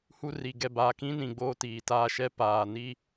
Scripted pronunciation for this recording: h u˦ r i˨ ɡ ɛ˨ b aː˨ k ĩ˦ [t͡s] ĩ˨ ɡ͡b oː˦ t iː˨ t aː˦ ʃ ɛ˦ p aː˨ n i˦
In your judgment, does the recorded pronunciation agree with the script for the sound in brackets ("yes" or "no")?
no